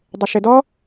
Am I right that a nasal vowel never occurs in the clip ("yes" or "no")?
yes